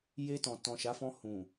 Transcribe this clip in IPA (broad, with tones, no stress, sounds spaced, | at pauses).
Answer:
j e˧ t ɔ̃˨ t ɔ̃˨ ʃ a˨˦ f ɔ̃˧ h ũ˨